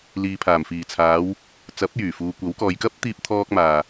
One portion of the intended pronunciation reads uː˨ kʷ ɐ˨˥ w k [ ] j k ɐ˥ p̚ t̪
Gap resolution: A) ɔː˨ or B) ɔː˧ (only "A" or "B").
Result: A